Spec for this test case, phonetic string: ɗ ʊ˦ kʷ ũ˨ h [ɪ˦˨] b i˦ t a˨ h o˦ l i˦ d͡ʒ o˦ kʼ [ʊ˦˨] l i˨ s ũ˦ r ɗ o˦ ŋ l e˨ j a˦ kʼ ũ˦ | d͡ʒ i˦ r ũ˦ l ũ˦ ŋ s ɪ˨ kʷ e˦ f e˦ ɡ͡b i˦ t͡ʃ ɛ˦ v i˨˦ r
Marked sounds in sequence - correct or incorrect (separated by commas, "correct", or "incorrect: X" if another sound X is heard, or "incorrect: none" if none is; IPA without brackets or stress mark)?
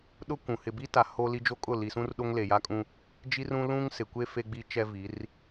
incorrect: ɪ˨, correct